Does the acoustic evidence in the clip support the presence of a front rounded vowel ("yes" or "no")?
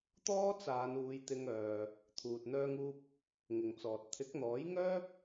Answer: yes